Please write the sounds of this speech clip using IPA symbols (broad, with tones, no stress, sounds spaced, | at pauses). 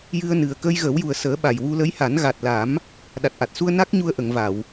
j ɨ˧ ə̯ n ɨ˨˩ ə̯ k ə˧ j ɣ ə˨˩˦ w j u˨˩ ə̯ s əː˨˩˦ ɓ a˨˩ j w u˧ l ə˧˥ j h a˨˩˦ n ɣ a˨˩ t̚ l a˨˩˦ m | ɗ a˨˩ t̚ ʔ a˨˩ t̚ s u˧ ə̯ n a˦˥ k̚ ɲ u˧ ə̯ ʔ ə˨˩˨ ŋ v a˨˩˨ w